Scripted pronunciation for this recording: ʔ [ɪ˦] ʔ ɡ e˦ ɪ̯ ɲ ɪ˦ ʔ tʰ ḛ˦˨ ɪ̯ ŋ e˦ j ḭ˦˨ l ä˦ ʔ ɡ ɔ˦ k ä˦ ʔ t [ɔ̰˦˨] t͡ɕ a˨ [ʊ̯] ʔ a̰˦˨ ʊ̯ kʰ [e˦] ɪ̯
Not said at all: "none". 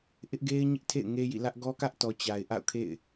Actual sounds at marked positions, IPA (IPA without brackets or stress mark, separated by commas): ɪ˦, ɔ˨, ɪ̯, ḛ˦˨